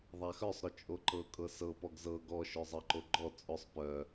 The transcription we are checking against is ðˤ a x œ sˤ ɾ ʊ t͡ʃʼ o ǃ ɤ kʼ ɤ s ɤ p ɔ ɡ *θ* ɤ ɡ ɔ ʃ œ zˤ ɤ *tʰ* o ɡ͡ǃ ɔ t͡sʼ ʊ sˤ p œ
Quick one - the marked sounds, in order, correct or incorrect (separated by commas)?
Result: incorrect, incorrect